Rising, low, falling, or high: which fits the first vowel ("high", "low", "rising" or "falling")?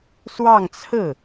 falling